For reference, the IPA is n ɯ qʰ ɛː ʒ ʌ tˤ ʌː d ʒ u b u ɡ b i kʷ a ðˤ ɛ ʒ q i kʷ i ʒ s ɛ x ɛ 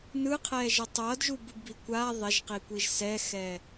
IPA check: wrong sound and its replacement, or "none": none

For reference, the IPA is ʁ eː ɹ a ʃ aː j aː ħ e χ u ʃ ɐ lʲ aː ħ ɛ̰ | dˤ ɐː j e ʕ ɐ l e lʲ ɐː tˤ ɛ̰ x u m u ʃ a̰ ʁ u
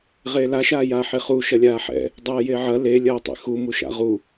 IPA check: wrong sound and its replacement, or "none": ɹ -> l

